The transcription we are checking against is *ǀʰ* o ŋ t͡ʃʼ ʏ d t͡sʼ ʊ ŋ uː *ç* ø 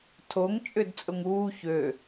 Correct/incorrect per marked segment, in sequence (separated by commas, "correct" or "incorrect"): incorrect, correct